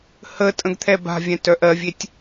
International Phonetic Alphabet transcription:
h ə tʼ ə̃ ɡ t̪ʰ ɛ b a̤ vʲ ɛ̃ t œ ʔ ɜ vʲ e tʲ

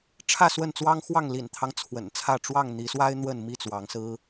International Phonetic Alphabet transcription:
ʈ͡ʂʰ ä˥˨ s w ə˥˨ n t͡s w ɑ˦ ŋ x w ɑ˥˨ ŋ l ḭ˨˩ n t̪ʰ ɑ˦ ŋ t͡sʰ w ə̰˨˩ n t͡sʰ ä˥˨ ʈ͡ʂ w ɑ˥˨ ŋ n̪ i˨˦ s w a˦ ɪ̯ n̪ w ə˥˨ n m i˥˨ t͡s w ɑ˨˦ ŋ s ɹ̩˦

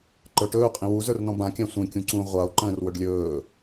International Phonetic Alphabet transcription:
ǃ ə˞ ʈ ɵː qʼ ĩ w u z ə˞ r n ɔ̃ b ã kʲ æ̃ sʷ ĩ kʲ ũ ǀ ũ ʁʷ a o̯ ǃ ə̃ː r w ɵ ɖ lʲ ɵː

